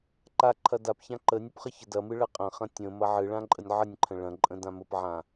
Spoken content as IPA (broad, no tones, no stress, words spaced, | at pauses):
ǃa ǃʰɐdapçã ǃənʲəp χəçədɐmɨ ɭɐqʼɐ̃χɐ̃ tʲə̃ mɐʕɨɭã ǃʼənʲʕənʲǃʰə̃ ɭɐ̃ǃʼə̃ dãməpʕã